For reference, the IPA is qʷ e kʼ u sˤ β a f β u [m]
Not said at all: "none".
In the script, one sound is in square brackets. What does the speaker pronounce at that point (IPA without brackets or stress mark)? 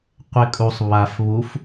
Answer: f